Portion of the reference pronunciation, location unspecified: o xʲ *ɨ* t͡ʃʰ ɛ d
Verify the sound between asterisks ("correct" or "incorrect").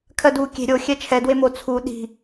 incorrect